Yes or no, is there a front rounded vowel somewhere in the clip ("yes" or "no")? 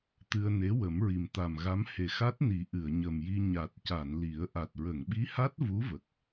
no